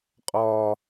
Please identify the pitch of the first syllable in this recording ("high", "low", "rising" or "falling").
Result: high